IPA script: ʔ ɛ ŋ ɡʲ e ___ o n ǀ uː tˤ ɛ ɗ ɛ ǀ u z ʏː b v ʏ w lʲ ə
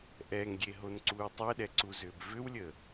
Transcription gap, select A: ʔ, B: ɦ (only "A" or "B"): B